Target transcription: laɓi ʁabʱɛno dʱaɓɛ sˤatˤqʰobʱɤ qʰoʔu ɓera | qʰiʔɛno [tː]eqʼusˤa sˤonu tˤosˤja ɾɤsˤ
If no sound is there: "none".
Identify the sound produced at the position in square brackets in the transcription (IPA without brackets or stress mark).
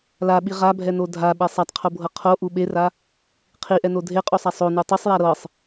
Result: dʱ